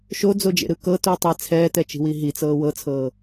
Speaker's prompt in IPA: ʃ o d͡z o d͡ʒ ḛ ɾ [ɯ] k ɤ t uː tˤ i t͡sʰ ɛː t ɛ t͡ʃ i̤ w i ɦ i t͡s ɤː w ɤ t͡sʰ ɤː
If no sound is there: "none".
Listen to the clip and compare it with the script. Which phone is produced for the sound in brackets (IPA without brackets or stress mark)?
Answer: ɯ